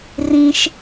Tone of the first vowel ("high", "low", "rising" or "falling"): high